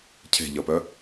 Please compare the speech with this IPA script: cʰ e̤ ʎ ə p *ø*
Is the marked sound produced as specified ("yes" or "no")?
no